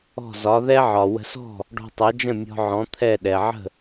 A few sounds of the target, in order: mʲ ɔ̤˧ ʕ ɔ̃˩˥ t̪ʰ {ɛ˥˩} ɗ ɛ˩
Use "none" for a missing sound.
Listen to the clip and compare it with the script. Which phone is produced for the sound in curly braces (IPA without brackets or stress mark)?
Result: ɛ˥˩